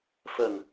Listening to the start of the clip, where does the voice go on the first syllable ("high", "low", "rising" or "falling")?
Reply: low